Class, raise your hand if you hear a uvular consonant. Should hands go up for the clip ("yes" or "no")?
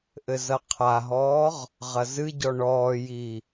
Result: yes